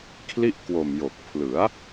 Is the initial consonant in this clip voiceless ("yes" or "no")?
yes